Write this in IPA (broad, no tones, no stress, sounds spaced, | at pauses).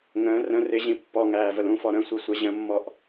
ŋ ə̃ː r ə̃ r ɪ ʑ ĩ pː ɔ ŋ æː v ə l ũ f ɔ ɾ ə̃ sʷ i sʷ ɛ ʑ ə̃ mː ɔ ʔ